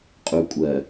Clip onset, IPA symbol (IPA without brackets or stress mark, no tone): qʼ